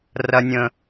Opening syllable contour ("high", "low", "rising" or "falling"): low